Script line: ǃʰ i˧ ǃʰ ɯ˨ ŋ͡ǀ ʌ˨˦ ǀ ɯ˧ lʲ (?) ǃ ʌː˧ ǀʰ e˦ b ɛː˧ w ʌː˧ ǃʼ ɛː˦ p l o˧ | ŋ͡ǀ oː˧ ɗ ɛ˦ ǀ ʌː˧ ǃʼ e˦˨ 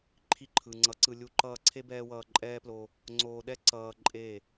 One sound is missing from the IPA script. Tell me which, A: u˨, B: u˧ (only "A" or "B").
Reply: B